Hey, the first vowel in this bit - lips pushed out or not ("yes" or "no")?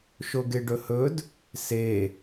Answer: yes